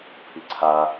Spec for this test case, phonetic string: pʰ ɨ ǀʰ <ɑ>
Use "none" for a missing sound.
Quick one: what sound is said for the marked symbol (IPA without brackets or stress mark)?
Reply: a